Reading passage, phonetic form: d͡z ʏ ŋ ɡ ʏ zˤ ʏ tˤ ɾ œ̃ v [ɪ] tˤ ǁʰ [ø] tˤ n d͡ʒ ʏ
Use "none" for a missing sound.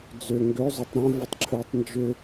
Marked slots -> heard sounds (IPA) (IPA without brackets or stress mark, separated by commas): ɪ, ø